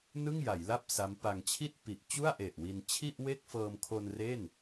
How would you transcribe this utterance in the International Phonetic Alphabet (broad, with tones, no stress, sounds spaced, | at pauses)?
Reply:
n ɯ˥˩ ŋ j a˩˦ j l a˥˩ p̚ s a˦˥ m p a˧ ŋ t͡ɕʰ i˥˩ t̚ p i˨˩ ʔ t͡ɕ u˥˩ a̯ ʔ e˨˩ ʔ w i˧ n t͡ɕʰ i˥˩ ʔ w e˥˩ k̚ f ɤː˧ m kʰ o˧ n r e˥˩ n